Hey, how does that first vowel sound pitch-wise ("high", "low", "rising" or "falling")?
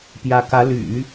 rising